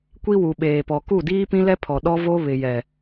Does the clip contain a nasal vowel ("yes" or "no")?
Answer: yes